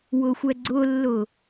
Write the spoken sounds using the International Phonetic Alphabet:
wʊxʷɛɡ͡ǀʊlːʊ

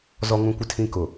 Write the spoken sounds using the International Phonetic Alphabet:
zɔ˨ŋũ˨kʷɪ˨tʰĩ˨ kʊ˨

